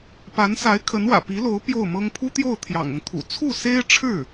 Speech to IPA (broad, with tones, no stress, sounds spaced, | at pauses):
p a˧˥ n s a˧˥ ɪ̯ kʰ ə˧˥ n w ä̰˨˩ p i˧˥ l o˧˥ ʊ̯ p j o˥˩ ʊ̯ m ɤ˥ ŋ pʰ u˥ t̪ j o˥˩ ʊ̯ t̪ʰ j ɑ̰˨˩ ŋ ʊ˦ ŋ t̪ʰ ṵ˨˩ t͡sʰ u˥˩ s e˥ ɪ̯ ʈ͡ʂʰ ɻ̩˥˩